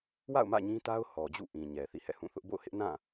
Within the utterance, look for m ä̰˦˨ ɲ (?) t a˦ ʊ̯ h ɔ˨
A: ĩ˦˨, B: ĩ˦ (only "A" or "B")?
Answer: B